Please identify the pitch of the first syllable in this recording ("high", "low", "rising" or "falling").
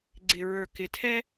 low